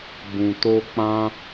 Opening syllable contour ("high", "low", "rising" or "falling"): low